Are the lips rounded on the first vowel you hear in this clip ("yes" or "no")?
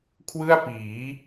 no